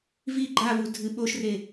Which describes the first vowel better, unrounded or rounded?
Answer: unrounded